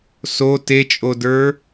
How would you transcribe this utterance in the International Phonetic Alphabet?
s o t e t͡ʃʼ o d ə˞

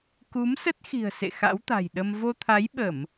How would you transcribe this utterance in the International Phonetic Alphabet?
k u˨˦ m s ə˦˥ t̚ x i̤˨˩ ə̯ s ḛ˧˨ x a̰˧˥ w t̪ a̤˨˩ j ɗ ə˧ m v o˧ t̪ʰ a˨˦ j ɓ ə˧˩˨ m

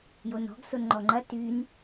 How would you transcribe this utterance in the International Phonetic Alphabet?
j o n ɔ̤ ɡ s o n ŋ͡ǃ ɔ ŋ͡ǃ ɐ t y n

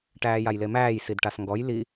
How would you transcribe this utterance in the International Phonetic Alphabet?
ʈ æː j a j l e m æː j s i d ʈ a s ŋ ɡ ɔ j l i

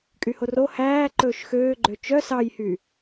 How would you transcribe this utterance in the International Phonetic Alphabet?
kʼ y h o r o h æː ǃ ɵː ʃ x øː ɡ͡ǃ ø t͡ʃ œ s ɑ j h y

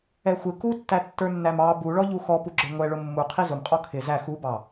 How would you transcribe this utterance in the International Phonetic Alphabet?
ɛ xʷ ɪ k u tː æ tː ə˞ nː æ m ɑ b u ɭ ɔ ʎ u x ɔ p u ɡ͡ǁ ə˞ ŋʷ ɛ ɭ ʊ mː u qʰ i z ʊ m qʼ ɔ kʰ ɪ z æ x u b ɑ

